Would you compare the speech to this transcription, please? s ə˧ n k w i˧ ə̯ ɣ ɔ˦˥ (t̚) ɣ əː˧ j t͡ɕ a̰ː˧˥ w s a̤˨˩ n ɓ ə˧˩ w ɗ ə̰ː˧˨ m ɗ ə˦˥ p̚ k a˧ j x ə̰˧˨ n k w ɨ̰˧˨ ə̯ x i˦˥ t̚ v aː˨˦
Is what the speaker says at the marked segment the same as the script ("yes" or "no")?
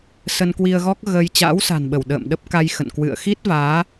no